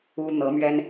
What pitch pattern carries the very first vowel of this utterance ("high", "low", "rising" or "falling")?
high